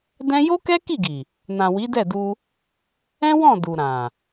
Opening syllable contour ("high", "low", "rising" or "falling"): high